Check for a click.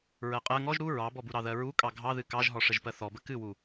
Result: absent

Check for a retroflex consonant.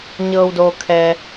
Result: absent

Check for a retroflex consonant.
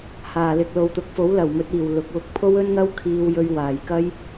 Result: absent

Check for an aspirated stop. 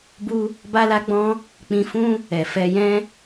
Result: absent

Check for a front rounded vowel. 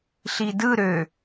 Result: present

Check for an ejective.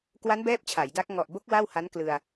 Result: absent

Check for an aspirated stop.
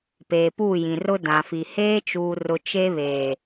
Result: absent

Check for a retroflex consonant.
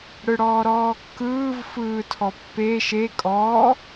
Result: present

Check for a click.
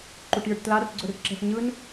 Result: present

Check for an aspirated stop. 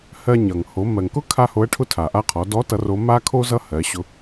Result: present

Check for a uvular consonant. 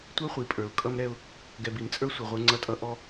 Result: present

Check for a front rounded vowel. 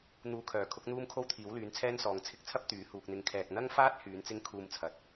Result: present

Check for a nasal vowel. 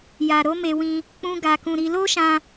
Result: present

